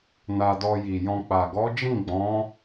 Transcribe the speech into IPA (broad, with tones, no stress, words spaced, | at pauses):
na˧dɔ˧ji˨jɔ̃˧ k͡pa˨ɡɔ˨˦d͡ʒĩ˦˨ ɡ͡bɔ̃˨˦